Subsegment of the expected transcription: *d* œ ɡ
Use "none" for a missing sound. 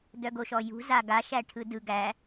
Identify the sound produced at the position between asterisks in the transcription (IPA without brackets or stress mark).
d